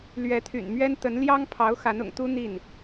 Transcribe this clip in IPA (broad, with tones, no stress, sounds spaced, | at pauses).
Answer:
l ɥ ɛ˧˥ t̪ʰ y̰˨˩ n m ɥ ɛ˥ n t̪ ə˧˥ n l j ɑ˥ ŋ pʰ ɑ˧˥ ʊ̯ x a˧˥ n ʊ̰˨˩ ŋ t̪ u˥ n̪ i˥˩ n